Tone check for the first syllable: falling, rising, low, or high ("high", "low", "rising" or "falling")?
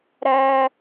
high